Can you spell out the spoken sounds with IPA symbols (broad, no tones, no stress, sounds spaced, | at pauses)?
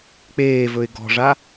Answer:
k͡p eː v ɵ ɪ̯ ɡ ɔ̤ ʐ a